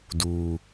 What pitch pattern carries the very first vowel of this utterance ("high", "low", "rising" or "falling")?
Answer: low